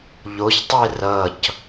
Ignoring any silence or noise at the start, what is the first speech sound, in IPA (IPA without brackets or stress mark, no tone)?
ʎ